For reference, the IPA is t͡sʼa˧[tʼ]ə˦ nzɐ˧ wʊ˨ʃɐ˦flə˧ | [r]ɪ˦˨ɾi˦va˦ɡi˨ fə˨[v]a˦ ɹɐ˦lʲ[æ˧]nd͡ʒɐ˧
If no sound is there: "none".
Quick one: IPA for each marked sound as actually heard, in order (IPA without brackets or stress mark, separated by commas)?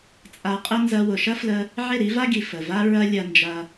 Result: qʼ, ʕ, v, ɐ˧